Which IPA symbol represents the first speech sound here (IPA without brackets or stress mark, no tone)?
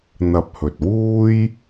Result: n̪